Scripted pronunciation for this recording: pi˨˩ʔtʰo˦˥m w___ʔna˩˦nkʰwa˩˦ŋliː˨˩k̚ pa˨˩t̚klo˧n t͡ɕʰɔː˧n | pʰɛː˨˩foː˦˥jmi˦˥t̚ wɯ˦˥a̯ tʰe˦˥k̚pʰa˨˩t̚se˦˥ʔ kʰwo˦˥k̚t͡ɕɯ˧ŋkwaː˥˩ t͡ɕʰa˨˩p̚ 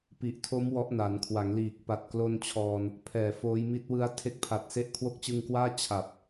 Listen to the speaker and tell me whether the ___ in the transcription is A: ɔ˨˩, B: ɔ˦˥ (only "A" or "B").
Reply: B